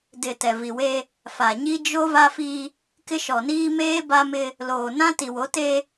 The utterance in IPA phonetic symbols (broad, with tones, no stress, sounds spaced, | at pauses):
d ɪ˨ t ɛ˨ v i˨ w e˦ | f a˨ ɲ i˦ d͡ʒ o˦ v a˦ f i˦ | k ɪ˦ ʃ ɔ˨ n iː˦ m eː˦ b a˦ m ɪ˦ | l oː˨ n ã˦ t i˨ w o˨˦ t e˦